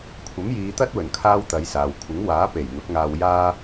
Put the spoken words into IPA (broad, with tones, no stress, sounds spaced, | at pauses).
kʷʰ ɐ˨˥ m j iː˨˧ t̪ ɐ˥ t̚ w ɵ˨˩ n kʰ aː˥ w t̪ ɐ˨˧ j s aː˨ w kʷʰ ɪ˨˥ ŋ w aː˨˥ p e˨˩ j n̪ ʊ˨˥ k̚ ŋ aː˧ w j aː˥